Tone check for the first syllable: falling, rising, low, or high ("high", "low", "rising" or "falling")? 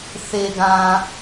low